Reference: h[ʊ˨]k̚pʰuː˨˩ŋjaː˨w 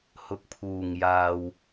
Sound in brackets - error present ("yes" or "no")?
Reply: no